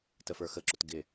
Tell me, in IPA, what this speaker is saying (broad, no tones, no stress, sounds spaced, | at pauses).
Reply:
t ə f ə˞ x ə ǁ ʊ t ɡ ɪ